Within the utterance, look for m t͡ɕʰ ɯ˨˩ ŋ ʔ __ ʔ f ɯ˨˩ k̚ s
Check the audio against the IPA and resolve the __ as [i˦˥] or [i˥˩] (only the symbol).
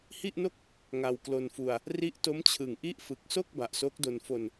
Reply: i˥˩